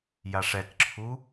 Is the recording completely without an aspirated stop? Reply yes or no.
no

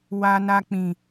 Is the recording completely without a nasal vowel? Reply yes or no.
no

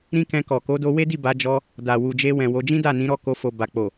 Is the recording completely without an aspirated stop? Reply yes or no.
yes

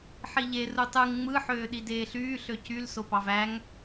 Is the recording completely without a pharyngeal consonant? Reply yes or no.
no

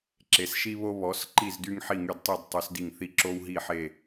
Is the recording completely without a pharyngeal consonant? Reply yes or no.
no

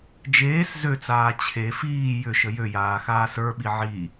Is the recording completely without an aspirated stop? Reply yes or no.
no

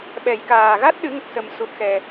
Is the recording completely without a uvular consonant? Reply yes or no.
yes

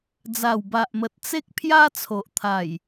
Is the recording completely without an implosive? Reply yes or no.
yes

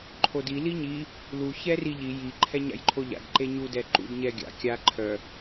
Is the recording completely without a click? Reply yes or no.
no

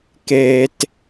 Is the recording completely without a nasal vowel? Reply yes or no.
yes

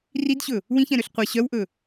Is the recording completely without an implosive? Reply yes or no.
yes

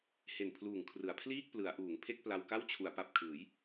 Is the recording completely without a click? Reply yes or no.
yes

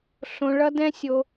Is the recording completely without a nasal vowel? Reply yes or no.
no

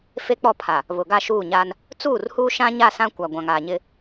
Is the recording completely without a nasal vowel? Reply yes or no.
no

